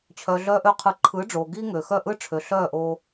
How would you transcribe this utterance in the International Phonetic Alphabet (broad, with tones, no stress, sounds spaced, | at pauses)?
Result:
t͡ɕʰ œ˩ ɮ œː˧ ʔ ø˧ qʰ ɯ˩˥ ǃʰ ɯ˩˥ ɖ͡ʐ o˩ ɡ i˥ ŋ ø˩ x œ˥˩ ʔ ɯ˥ ʈ͡ʂʰ ø˩ ɬ œː˥˩ ʔ oː˧